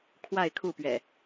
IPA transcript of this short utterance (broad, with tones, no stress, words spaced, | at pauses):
kʰwa˥˨ɪ̯kʰu˥˨pɥɛ̰˨˩